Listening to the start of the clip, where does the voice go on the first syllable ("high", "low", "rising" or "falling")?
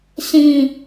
falling